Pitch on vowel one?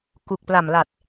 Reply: low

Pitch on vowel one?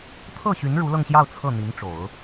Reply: falling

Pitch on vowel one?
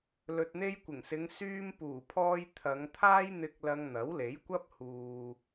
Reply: low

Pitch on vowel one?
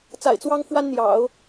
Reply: low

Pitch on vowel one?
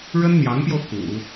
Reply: high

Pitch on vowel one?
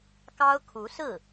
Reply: high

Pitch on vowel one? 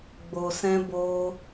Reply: low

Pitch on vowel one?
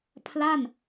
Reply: falling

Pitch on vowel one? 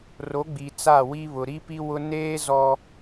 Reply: rising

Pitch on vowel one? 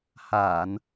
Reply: low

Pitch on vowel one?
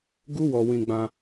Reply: high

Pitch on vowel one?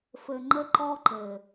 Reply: low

